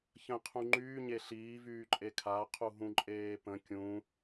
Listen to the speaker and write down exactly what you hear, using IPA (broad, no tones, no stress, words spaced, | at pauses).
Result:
çə̃ qʰũŋ͡ǃyː ɲeɬiː vyːǃʼekʰa qʰuɦũǃʼeːpə̃ kʲũ